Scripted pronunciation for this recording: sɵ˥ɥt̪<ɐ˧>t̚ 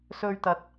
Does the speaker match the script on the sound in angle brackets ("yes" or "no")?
yes